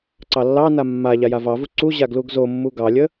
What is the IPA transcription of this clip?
ǀ ɑ lː ɑ n a mː a ʎ a j a v ɑ v u ǀ u ʑ a ɡ l u ɡ z o mː u ɡ ɑ lʲ ə

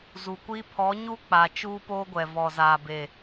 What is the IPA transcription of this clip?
z u˨ kʷ i˦ pʰ ɔ˨˦ ɲ u˦ k͡p a˨ t͡ʃ uː˦ p oː˦ ɡʷ ɛ˨ v ɔ˨ z aː˨ b e˨

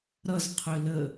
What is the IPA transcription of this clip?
ɾ ʌ z qʰ ʏ l ə

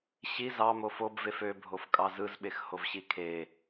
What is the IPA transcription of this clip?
ɕ i z ɑ m o f o b v e f ø bʱ o f kʼ ɑ z ɯ z ɓ e x h o v ɕ i kʰ e

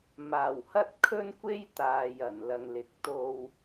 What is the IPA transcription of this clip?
m aː˨˩ w h ɐ˥ t̚ kʰ ɵ˥ n kʷ e˥ j t̪ aː˨ j ɐ˨˩ n l ɐ˨ ŋ l ɪ˨ k̚ t̪ o˧ w

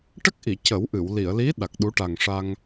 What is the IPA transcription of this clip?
ʈ ə˦˥ k̚ ʔ i˨˩˨ c ə˨˩˦ w ʔ ɨ˨˩˨ w l i˨˩˨ ə̯ l i˧˥ ɗ a˨˩ k̚ ɗ u˧˥ ʈ a˨˩ ŋ ʂ a˧ ŋ

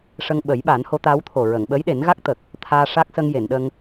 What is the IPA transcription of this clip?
ʂ ə˧ ŋ ɓ ə˨˩˦ j ɓ a˨˩˦ n h o˧˥ t̪ aː˧˥ w t̪ʰ o˨˩ ɹ ə˨˩˨ ŋ ɓ əː˧˥ j ɗ e˨˩˦ n ɣ a˦˥ k̚ t̪ ə˨˩ k̚ | t̪ʰ aː˧ ʂ a˦˥ k̚ s ə˧ ŋ j e˨˩˨ n ɗ ə˧ ŋ

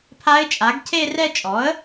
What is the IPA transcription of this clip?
pʰ a˧˥ ɪ̯ t͡ʃʼ a˩˥ ɡ cʰ e˥˧ r ɛ˥˧ t͡ʃʼ ɔ˩˥ ə̯

